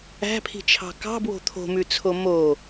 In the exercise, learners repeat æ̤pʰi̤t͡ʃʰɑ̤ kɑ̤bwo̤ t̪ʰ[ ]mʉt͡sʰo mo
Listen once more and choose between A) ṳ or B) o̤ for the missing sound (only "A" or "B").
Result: B